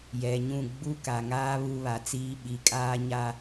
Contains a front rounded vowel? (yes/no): no